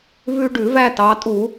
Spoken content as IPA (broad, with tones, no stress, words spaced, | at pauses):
vʉ˦ ɖʉ˧˩˧væ˥˨ tɑ˩˧tʼu˧˩˧